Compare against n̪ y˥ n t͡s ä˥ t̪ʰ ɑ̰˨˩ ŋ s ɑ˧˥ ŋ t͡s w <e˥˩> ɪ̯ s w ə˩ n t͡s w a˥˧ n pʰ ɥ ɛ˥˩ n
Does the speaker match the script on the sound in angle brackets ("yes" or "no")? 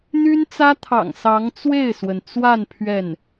yes